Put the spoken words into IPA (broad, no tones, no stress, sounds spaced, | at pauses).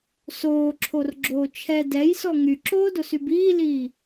s oː ǁʰ o r ɡ͡ǁ oː t͡ʃʰ ɛ d ɛ j s ɔ ŋ y ǁ oː d o s y b iː l iː